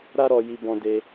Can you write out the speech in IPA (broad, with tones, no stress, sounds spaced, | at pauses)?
ɾ a˦ ɾ ɔ˧ j i˧ b ɔ̃˧ d e˧